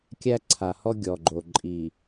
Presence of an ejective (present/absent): present